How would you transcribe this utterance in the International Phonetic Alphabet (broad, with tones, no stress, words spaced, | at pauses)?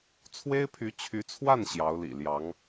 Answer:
t͡sʰwe˥ɪ̯pʰy˧˥t͡ɕʰy˧˥t͡sʰwa˥˩n ɕjɑ˧˥ʊ̯lḭ˨˩ljɑ˧˥ŋ